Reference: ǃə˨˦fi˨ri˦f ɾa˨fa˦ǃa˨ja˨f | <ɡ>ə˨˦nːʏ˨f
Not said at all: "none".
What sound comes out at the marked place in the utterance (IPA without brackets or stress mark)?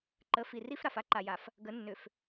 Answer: ɡ